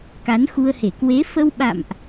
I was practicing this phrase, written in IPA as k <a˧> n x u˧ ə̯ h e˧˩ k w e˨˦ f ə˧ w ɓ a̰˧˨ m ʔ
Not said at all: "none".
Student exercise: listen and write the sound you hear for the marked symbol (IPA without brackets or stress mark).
a˨˦